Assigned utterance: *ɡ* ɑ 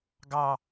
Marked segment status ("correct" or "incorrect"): correct